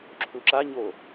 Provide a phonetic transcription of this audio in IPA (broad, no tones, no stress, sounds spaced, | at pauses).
ǁʰ u ǁ a ɲ o